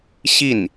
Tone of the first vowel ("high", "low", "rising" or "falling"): falling